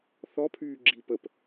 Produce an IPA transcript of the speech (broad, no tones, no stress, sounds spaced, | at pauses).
θ ɔ pʰ yː ɡ͡ǁ i p ə p